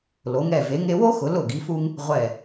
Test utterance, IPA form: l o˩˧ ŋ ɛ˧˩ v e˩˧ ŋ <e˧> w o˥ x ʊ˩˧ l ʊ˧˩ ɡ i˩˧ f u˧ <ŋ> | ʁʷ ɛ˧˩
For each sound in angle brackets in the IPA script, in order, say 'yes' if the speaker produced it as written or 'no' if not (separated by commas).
yes, yes